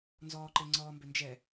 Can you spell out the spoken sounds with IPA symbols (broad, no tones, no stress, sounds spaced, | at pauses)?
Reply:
n z ɔː ǃ e ŋ͡ǀ ɔː m b ʏ n d͡ʒ ɛ